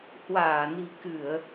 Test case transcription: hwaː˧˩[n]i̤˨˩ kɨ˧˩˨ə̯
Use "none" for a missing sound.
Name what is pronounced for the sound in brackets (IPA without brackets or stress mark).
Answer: n